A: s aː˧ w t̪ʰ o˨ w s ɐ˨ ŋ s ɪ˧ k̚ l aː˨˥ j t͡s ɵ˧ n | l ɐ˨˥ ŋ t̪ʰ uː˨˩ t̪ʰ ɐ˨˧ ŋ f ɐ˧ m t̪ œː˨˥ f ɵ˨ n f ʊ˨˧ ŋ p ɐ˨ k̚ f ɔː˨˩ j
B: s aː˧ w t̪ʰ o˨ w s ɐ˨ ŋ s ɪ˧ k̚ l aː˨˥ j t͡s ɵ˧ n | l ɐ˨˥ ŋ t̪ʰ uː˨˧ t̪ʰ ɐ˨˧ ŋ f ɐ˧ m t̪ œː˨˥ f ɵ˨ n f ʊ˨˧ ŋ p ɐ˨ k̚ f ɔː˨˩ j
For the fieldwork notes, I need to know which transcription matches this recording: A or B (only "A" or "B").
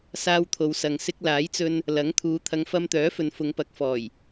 B